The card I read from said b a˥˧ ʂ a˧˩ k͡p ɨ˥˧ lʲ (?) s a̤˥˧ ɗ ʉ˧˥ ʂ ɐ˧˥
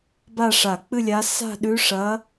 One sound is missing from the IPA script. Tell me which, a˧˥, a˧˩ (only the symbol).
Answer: a˧˥